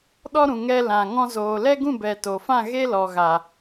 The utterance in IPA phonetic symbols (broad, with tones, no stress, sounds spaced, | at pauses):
ɗ ɔ˦ ɾ ũ˨ ŋ ɛ˧ l ã˨ ŋ ɔ̃˧ z oː˨ l ɛ˦ ɡ ũ˦˨ b ɛ˨ t o˨ f ã˦˨ ɣ e˦ l ɔ˨ ɣ a˨